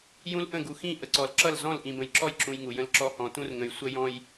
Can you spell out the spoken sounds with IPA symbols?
j ũ˦ l ʔ ə̃˦˨ ɡ u˨ x ĩ˦˨ ʔ ə˨ ǀ ɔ˨ l ǁ ʌ˦˨ l z ɔ̃˦˨ l ʔ ĩ˨ b ə̃˨ j ǁ ɔ˦ j ǁ ũ˨ j ŋ u˨ j ə̃˦ l ǁ ɔ˦ h ɔ̃˨ t ũ˦ r ŋ ə̃˨ j sʷ ə˦ j ɔ̃˦ j

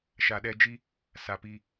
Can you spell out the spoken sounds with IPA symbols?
ʃ a˨ ɗ ɛ˧ d͡ʒ i˦ | s a˨ p i˧

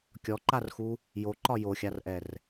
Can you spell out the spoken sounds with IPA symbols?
kʲ ɔ ǃ a r x u | j o ǃ ɒ j o xʲ a r ʔ ɛ r

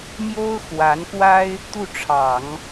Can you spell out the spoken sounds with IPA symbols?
m j o˥ ʊ̯ x w a˧˥ n k w a˥ ɪ̯ | t̪ u˥˩ ʈ͡ʂʰ ɑ˨˩˦ ŋ

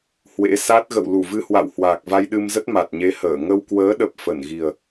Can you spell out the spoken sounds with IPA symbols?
h w ḛ˧˥ s a˦˥ t̚ ɣ ə̰˧˨ w l u˧˩ v ɨ˧ h w a̰˧˨ w h w aː˨˩ k̚ v a˧ j ɗ ɨ˧ m z ə˦˥ t̚ m a˨˩ t̚ ɲ e˨˦ h əː˧˩ ŋ ə˧ w k w əː˨˦ ɗ ə˨˩ p̚ f ə˧˩ n ɣ i˨˩ ə̯

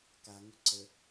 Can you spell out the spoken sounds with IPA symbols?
k a ŋ ʊ ǀ ə

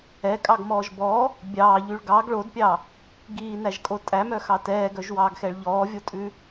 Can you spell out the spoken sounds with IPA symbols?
ɛ kʼ ɑ ɡ m ɔː ʒ b ɔ | bʲ ɑː ʎ y ɭ ɡ ɑ ɡ ɭ o d pʲ ɑ | ɡ iː n æ ʒ kʼ o tʼ æ m œ x ɑ t ɛː ɡ œ ʒ w ɑː ɡ x ɛ ɭ ʎ ɔː vʲ o tʼ ʉ

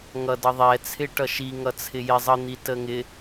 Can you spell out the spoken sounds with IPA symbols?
ŋ ʌ d ʌ ðˤ ɛ t͡sʰ ɪ ʈ ʌ ʃ i ŋ ʌ t͡sʰ ɪ j ɪ zˤ ə n̪ i t ə ŋ ɪ

